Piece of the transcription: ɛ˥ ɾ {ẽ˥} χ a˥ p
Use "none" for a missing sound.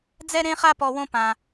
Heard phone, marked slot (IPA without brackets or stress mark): ẽ˥